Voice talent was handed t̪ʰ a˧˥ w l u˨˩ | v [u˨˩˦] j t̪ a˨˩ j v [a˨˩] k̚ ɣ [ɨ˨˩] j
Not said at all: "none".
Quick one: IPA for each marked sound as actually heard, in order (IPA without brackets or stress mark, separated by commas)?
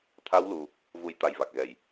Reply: u˨˩˦, a˨˩, ɛ˨˩